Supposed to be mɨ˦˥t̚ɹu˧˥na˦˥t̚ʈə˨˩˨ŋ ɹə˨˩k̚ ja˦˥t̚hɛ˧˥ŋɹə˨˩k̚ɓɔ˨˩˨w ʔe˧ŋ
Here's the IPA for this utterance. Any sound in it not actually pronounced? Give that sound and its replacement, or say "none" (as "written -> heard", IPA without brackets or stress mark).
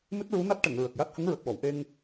ɛ˧˥ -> ə˧˥